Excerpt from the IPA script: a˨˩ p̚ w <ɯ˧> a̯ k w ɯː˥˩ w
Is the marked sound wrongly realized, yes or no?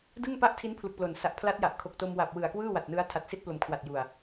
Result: yes